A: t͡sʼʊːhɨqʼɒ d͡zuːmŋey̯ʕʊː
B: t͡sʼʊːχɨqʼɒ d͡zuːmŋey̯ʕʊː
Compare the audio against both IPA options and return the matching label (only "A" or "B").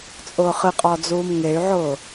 B